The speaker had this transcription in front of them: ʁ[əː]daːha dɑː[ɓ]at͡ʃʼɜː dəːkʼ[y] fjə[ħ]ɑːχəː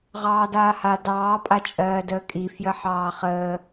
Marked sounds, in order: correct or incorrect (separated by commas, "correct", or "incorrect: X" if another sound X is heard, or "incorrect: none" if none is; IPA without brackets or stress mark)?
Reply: incorrect: ɑː, incorrect: pʼ, incorrect: i, correct